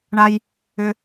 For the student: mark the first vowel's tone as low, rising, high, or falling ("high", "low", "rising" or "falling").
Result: low